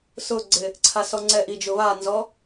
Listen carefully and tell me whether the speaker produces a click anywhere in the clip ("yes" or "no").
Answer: yes